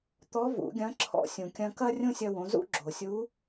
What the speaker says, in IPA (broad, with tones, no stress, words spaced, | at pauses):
t̪ɔ˧˥vṵ˩˧ɡʲɐ̃˧˥ ǁʰɔ̰˧ sʲũ˩kʲɐ̃˧kɐ˥ rʲũ˥sʲɐ˧wõ˩˧zṵ˥ ɡ͡ǁo˩ sʲu˧˥